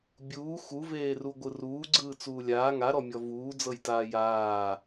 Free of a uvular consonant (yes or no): yes